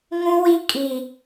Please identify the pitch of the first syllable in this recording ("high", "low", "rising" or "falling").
high